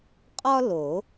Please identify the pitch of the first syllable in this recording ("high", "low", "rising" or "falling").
high